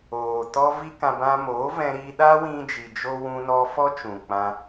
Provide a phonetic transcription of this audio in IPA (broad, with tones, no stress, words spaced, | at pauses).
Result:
oː˨ tɔ˦vi˦kã˧ bã˧moː˨˦vɛ̃˧ɾiː˧ ɗaː˦wĩ˧d͡ʒi˨d͡ʒo˧ wũ˧nɔ˧ fɔ˦t͡ʃũ˨ k͡pã˧